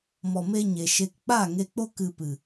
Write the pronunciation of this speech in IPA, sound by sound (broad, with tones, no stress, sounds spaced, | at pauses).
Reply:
m ɔ˨ m e˧ ɲ e˨ ʃ e˧ k k͡p a˦˨ ŋ e˧ k͡p o˦ k ɨ˧ p ɨ˨